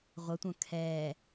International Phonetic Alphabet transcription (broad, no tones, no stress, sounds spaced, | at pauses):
ʁʷ ə tʷ œ̃ kʰ ɛː